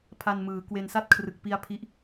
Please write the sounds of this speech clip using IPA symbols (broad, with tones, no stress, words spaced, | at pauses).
pʰa˧nmɯː˩˦ kwe˧nsa˥˩t̚kʰrɯ˨˩k̚pi˦˥a̯ pʰi˥˩ʔ